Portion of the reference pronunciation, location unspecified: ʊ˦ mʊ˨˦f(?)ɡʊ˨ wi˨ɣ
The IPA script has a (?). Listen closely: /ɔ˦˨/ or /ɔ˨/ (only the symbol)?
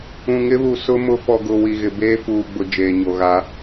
ɔ˨